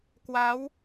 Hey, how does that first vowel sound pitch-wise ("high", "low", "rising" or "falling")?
rising